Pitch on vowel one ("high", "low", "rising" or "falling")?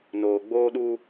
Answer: low